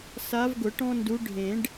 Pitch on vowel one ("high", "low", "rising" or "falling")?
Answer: rising